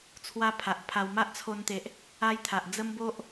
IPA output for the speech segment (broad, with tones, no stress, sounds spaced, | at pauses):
t͡sʰ w a˦ pʰ a˨ ʔ pʰ a˧ w m a˦ ʔ t͡sʰ o˧ n t̪ e˨ ʔ | a˦ j t̪ʰ a˨ ʔ d͡z ə˦ m b o˦ ʔ